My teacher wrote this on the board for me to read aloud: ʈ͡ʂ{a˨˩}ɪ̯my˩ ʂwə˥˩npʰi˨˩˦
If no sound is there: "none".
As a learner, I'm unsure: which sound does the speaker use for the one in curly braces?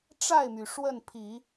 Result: a˥˩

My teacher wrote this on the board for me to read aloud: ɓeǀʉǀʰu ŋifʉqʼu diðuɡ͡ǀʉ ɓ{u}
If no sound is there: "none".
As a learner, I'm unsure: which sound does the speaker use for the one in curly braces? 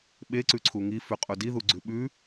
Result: ʉ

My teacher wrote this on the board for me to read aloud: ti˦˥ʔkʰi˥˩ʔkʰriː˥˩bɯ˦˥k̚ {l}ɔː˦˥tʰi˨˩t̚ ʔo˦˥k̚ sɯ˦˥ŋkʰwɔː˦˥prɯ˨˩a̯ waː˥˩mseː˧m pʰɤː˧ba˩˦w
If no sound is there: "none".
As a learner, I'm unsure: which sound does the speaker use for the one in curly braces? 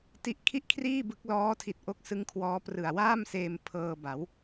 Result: l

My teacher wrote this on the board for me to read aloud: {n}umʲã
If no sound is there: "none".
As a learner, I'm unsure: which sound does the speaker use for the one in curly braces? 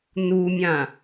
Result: n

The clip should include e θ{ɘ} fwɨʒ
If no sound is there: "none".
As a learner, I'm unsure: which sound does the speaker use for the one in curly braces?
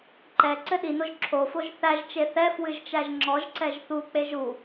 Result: ɛ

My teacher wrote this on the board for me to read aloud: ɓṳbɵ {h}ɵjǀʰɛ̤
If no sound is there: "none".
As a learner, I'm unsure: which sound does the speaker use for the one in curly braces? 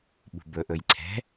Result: ʔ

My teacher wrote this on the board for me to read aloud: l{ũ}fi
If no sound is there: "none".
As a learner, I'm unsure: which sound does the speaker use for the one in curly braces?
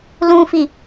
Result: ũ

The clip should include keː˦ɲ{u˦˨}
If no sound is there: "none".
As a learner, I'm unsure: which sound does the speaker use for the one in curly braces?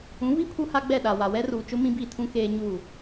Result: u˦˨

